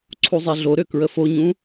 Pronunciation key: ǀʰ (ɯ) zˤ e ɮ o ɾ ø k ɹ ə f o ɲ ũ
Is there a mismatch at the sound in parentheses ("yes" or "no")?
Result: yes